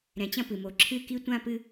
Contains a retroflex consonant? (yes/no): no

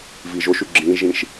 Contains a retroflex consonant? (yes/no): no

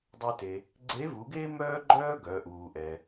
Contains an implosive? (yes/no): no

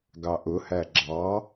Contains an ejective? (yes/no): no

